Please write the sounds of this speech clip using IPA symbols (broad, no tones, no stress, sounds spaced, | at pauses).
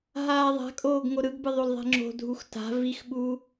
ɦ aː ðˤ a̤ kʼ oː ɡ ŋ o ɾ ɯ ɡ b ɯ ðˤ o l ðˤ ɛ̤ ŋ͡ǁ o̤ dʱ u x t a̤ v i x ɓ uː